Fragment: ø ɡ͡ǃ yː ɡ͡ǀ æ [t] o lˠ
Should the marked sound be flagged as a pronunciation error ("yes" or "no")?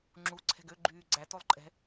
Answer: no